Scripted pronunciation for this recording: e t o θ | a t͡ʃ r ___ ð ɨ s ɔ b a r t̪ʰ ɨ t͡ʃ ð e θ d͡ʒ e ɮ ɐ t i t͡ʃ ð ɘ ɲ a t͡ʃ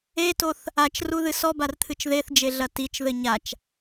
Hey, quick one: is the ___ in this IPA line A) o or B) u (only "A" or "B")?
B